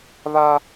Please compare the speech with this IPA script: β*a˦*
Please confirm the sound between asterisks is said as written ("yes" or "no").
yes